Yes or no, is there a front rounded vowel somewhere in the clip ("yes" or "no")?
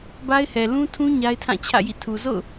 no